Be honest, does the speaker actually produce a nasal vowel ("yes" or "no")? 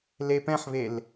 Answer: yes